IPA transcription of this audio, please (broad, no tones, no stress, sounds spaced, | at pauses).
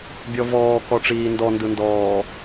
bʲ ɔ v ɔː k ɔ ʈ͡ʂ iː n d ɔ n d ɯ n d ɔː